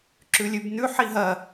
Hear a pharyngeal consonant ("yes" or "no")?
yes